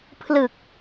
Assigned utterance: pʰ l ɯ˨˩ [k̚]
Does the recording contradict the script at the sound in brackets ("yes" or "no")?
no